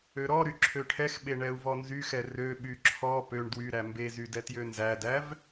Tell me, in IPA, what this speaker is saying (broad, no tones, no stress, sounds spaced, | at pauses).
ø ɾ ɔ ɾ y ǁʰ ø ʈʰ ɛ x ɓ e ɳ ɛ u̯ v ɔ n z y x ɛ r ø ɓ y ǁʰ ɔ p ø ɳ d w y ɾ æ m b e z y d ɛ t j ø n z æ d æ v